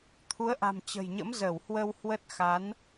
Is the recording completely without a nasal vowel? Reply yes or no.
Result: yes